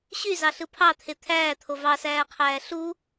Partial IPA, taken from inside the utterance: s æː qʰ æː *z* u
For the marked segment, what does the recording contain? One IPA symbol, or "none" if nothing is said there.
ɬ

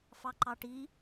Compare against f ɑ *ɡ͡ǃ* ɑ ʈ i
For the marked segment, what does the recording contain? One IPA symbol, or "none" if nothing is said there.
ǃ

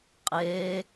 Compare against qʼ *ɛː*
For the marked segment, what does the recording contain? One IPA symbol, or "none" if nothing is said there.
eː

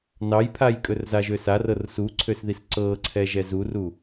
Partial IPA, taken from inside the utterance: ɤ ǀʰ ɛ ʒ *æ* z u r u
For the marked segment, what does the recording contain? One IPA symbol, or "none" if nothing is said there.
ɛ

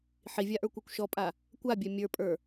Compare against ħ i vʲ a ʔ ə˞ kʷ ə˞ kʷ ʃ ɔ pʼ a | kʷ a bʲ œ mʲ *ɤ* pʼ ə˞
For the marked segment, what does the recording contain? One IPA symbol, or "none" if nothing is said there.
ə˞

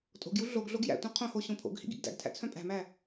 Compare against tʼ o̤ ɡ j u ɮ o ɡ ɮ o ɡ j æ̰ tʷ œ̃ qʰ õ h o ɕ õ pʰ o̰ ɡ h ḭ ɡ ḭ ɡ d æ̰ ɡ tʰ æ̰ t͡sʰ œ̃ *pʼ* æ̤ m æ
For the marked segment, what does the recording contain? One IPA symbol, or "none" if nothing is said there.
pʼ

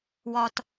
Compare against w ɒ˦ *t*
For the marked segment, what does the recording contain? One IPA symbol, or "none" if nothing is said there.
t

